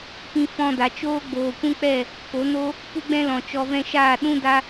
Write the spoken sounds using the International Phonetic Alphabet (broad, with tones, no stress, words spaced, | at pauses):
pĩ˧fɔ̃˧da˨t͡ʃoː˦ ɡ͡boː˨kʷũ˦k͡pɛ˦˨ | ko˨˦ no˦ | pu˦ɡ͡bɛ̃˦lɔ̃˨t͡ʃɔ˧ vɛ̃˦ ʃa˦˨ ɗũ˦ da˦